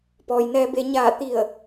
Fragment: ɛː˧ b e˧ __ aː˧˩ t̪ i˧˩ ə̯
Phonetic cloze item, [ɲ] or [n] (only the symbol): ɲ